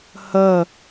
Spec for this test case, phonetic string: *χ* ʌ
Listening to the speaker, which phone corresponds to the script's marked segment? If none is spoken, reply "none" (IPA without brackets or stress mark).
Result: h